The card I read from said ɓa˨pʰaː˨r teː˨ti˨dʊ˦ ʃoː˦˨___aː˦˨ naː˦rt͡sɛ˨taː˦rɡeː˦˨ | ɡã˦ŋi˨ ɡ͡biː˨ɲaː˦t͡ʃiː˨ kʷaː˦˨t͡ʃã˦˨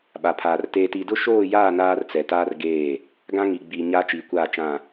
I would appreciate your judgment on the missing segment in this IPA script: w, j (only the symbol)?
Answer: j